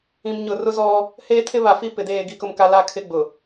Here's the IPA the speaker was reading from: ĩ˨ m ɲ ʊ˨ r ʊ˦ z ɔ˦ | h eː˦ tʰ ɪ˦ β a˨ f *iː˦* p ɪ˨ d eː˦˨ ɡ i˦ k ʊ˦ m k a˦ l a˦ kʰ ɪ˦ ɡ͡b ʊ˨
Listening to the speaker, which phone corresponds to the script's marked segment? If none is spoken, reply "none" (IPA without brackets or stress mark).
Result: i˦